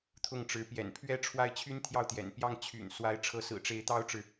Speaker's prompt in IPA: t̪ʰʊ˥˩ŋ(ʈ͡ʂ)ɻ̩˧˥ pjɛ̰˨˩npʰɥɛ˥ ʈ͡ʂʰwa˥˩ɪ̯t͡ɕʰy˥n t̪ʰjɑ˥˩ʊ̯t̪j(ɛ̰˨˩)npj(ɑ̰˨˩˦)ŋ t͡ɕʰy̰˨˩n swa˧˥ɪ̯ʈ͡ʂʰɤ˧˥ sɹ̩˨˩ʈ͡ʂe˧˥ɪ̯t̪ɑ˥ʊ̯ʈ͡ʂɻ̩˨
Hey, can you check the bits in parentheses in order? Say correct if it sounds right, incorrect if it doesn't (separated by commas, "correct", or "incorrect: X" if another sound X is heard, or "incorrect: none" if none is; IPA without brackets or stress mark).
correct, correct, incorrect: ɑ˥˩